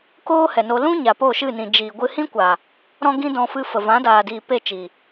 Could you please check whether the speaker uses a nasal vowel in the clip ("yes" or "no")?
yes